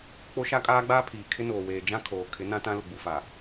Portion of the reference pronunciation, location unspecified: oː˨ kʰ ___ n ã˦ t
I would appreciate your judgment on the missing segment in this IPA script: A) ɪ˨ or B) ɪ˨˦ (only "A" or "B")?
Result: B